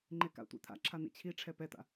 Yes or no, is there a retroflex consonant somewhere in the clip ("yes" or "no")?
yes